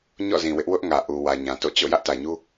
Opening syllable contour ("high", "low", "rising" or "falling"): falling